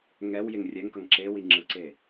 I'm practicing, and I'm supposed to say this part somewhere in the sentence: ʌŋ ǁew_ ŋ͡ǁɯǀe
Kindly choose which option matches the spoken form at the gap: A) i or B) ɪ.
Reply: A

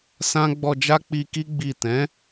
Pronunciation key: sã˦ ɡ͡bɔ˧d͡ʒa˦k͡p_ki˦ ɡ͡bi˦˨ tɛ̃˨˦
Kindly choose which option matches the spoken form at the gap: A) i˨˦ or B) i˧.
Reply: B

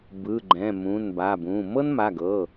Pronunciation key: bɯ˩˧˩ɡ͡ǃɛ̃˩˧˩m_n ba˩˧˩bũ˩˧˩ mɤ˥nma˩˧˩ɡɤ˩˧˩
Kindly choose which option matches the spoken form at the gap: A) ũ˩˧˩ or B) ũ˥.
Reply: A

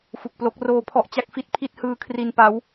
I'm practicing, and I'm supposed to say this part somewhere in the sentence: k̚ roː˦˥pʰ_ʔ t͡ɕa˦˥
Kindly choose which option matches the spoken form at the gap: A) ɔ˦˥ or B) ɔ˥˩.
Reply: A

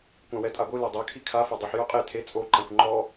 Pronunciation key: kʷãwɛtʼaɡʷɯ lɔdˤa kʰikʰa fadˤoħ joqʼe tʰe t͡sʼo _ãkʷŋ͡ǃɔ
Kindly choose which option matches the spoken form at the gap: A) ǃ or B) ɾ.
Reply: A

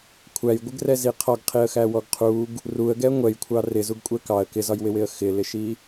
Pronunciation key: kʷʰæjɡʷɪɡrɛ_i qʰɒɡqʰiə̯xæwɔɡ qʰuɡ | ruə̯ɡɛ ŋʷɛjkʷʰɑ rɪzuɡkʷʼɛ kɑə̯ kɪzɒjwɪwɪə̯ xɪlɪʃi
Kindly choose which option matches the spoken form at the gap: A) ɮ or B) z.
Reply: B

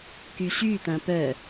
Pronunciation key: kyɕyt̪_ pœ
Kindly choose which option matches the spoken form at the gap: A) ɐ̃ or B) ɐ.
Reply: A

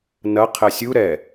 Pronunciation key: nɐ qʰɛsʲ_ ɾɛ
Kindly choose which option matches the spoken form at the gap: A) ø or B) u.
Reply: B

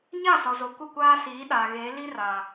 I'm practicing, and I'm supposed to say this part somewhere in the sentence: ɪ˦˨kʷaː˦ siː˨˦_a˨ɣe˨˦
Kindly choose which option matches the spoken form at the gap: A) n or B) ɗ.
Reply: B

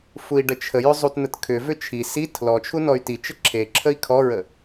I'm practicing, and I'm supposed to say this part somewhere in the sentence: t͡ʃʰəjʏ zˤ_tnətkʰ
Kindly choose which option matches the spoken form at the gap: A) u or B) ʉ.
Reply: A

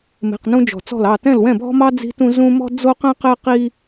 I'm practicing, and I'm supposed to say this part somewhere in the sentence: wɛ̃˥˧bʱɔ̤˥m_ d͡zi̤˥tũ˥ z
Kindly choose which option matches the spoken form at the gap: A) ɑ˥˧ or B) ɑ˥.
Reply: B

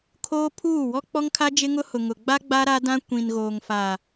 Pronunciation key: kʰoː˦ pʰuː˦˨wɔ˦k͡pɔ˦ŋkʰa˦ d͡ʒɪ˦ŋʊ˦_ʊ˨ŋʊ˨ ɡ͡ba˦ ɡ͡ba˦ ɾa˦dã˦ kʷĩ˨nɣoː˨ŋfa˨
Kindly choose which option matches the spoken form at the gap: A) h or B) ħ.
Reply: A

